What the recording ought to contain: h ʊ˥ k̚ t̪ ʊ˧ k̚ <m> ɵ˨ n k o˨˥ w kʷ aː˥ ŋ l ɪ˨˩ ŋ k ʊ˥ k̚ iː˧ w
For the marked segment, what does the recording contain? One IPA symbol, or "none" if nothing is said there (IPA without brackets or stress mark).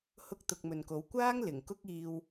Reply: m